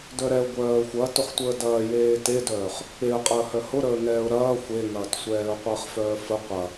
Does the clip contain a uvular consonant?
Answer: yes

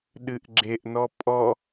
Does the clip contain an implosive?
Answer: yes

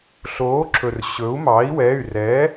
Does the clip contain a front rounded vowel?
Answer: yes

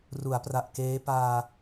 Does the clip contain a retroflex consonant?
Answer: no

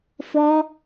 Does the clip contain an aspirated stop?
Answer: no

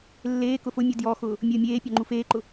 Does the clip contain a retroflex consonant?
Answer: no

